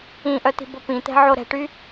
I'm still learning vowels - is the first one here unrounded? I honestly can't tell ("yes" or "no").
yes